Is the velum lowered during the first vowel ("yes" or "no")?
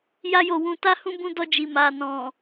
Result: no